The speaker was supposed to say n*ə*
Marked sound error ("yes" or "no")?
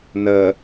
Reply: no